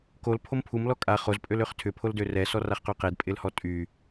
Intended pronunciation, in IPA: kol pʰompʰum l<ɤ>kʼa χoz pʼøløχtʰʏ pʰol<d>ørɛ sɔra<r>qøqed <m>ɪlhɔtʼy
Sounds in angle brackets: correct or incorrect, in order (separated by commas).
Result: incorrect, correct, incorrect, incorrect